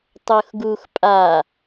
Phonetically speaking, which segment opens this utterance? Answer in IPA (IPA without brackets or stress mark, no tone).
tˤ